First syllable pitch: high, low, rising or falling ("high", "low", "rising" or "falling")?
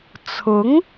rising